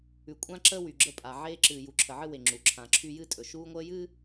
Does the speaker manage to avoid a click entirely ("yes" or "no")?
no